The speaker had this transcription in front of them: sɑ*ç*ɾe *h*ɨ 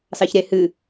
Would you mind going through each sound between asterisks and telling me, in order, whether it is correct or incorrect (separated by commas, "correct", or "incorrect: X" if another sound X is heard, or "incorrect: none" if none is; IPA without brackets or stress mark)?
correct, correct